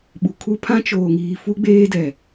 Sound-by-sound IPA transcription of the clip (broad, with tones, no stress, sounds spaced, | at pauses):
ɓ u˨ kʰ u˦ pʰ ã˦ t͡ʃ oː˨ ŋ iː˨ f u˦ ɡ͡b eː˦ d ɛ˨